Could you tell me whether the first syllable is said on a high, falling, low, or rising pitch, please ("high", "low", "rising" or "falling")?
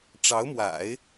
rising